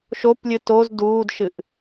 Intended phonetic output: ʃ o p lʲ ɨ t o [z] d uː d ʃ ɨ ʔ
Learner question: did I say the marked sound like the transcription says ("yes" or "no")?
yes